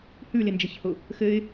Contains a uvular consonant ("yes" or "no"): no